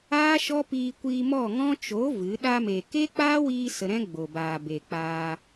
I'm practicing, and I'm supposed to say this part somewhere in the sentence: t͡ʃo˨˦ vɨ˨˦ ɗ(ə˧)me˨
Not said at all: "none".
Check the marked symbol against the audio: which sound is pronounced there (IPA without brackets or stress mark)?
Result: a˧